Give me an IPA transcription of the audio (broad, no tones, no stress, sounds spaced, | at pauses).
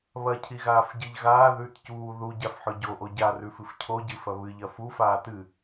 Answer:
β ɐ cʰ i ɣ aː f ɟ ɨ ʎ ɣ aː ð ʉ t c uː ð u ɟ a f ħ ɵ ɟ o ʔ o ɟ a r ʉ f ɨ f cʰ o ɟ ɨ f ɐ β ɨ ʎ ɐ f u f aː t ɨ